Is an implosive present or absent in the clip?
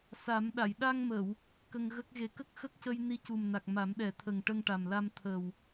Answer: present